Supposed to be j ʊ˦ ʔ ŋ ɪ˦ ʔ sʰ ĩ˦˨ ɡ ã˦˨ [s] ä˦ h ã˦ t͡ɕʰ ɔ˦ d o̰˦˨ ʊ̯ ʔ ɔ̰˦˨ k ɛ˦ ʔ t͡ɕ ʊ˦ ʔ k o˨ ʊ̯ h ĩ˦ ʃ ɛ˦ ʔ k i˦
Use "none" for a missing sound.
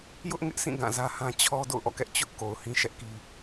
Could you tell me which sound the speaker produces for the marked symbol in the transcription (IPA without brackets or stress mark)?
z